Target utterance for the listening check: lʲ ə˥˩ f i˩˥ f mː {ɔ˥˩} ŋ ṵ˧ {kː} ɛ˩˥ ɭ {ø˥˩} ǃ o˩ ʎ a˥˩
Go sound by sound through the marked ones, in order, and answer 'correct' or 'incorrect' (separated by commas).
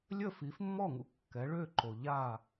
correct, correct, correct